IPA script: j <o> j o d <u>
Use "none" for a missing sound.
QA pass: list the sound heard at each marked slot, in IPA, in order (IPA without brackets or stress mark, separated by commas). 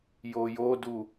o, u